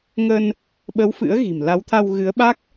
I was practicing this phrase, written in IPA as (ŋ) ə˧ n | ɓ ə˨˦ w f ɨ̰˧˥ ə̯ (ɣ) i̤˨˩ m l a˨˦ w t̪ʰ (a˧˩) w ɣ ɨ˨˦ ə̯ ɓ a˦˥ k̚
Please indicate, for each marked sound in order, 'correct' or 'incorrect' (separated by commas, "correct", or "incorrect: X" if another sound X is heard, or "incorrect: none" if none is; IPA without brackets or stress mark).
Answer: correct, correct, incorrect: a˧